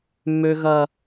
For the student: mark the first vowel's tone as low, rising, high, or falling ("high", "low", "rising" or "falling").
high